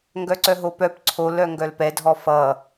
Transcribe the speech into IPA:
ŋɡœǀœɦopœp ǀʰol œŋɡœlpɛ dʱɔfʌ

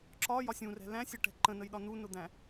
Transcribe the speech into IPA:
ǁɒjɒsʲ ũrɛ̤ læ̃sʲɜʈɛ̤ ǃə̃nəjɗɒ nunʊd̪æ̃

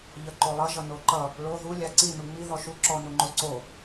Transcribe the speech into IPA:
ʎʌǃolˠʌ ʒʌnoǃʌ | ɭo ðu lʲaǀi nuŋ͡mi ðɔʃu ǁɔnuŋ͡ǃoǀo

